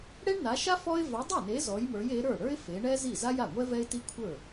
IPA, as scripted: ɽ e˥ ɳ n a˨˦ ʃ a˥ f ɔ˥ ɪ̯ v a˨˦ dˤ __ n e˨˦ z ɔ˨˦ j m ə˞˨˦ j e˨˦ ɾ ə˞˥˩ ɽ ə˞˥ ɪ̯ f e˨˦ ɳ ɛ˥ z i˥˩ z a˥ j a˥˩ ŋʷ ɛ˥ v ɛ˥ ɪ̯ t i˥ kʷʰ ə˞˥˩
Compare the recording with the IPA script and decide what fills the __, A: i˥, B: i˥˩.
B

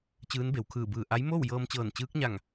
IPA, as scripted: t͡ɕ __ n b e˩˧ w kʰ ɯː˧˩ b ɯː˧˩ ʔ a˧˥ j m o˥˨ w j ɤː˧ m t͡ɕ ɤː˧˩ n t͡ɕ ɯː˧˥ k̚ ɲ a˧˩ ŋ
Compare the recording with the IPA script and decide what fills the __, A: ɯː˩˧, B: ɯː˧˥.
B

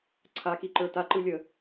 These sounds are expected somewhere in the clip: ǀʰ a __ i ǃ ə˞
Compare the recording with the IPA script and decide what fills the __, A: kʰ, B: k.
B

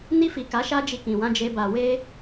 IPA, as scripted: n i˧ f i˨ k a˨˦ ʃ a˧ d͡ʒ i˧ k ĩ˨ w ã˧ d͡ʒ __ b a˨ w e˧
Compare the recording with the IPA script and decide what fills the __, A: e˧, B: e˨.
A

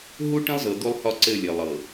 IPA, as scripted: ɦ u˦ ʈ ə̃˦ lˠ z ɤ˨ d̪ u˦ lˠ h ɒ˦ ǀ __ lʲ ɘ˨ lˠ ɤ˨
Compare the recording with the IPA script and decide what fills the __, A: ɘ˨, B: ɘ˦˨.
B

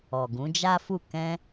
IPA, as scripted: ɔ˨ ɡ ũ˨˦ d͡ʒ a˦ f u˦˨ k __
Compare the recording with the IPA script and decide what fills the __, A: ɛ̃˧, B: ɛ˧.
A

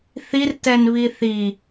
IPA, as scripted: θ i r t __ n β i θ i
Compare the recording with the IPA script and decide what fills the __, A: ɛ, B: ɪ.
A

